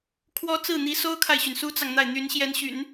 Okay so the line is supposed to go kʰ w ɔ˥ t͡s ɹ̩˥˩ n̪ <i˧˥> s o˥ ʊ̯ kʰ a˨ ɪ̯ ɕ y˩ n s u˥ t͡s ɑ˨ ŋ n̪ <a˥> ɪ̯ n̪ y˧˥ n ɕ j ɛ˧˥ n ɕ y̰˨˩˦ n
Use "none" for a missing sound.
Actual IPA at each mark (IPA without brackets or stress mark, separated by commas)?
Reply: i˧˥, a˥˩